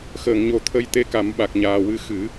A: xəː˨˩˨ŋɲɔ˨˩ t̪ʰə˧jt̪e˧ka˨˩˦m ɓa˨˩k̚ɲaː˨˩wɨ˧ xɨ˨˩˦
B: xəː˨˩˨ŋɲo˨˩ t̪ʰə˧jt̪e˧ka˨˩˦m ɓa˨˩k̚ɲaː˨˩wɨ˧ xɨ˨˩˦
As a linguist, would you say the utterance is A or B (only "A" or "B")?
B